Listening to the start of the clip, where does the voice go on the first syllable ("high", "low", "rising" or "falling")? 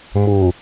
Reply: low